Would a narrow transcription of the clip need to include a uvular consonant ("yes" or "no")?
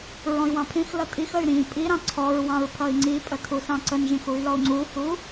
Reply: no